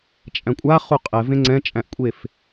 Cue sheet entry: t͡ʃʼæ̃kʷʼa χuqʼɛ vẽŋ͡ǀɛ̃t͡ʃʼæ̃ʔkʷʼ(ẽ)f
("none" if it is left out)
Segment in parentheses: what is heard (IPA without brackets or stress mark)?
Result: e